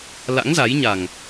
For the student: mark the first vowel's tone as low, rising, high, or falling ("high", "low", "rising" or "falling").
rising